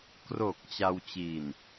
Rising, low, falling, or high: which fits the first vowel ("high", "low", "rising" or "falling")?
low